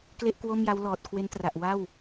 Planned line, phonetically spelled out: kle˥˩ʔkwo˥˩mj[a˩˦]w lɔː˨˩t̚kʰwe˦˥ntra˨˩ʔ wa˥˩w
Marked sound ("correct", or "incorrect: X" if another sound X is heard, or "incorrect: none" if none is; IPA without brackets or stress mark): incorrect: a˦˥